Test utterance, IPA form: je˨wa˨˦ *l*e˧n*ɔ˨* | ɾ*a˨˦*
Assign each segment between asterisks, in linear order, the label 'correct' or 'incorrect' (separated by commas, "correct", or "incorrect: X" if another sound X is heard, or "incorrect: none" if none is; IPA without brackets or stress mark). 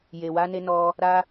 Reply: incorrect: n, incorrect: ɔ˧, incorrect: a˧